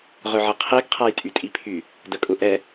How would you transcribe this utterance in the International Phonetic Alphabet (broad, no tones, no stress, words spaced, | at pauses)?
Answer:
ʁœʕɐqʰeɡ qʰajtʼytʼipʰy | dəkʼʊʔɛ